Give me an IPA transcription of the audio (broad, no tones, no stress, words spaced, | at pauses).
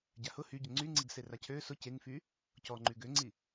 ɟahʊ hyɟʊ ŋ͡ǀyŋ͡ǀiɡse racʰø sʊ ceŋfy | cɔŋ͡ǃy ɡøŋ͡ǀi